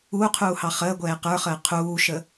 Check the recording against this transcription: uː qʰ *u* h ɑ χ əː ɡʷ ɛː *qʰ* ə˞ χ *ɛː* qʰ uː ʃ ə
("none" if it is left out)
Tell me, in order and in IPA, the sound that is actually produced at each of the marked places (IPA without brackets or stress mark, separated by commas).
uː, q, əː